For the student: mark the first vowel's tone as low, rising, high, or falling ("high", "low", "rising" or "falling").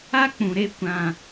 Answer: high